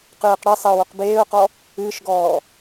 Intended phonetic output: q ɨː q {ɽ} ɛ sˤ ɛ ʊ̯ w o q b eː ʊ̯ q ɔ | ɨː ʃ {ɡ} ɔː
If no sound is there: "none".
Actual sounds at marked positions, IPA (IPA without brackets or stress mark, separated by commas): ɽ, ɡ